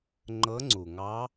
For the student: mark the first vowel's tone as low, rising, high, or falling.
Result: rising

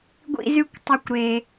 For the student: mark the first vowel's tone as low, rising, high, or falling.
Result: high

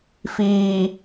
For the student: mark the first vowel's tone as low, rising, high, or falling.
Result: low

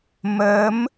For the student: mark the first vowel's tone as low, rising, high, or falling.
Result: rising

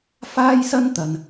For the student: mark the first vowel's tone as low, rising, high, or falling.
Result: high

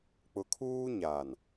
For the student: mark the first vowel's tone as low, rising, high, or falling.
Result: low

